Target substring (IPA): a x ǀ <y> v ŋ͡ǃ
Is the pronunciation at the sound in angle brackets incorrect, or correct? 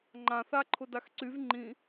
correct